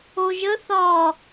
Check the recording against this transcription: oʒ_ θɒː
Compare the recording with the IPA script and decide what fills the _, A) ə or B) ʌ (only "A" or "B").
A